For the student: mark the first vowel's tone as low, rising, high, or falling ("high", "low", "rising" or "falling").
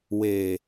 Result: low